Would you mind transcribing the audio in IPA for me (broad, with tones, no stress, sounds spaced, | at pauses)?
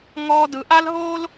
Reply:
ŋ ɔː˦ d ɯ˨˦ ʔ a˦ l ɦ oː˦ l